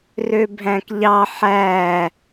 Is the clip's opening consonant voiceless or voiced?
voiced